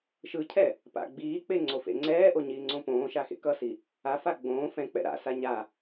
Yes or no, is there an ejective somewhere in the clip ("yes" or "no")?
no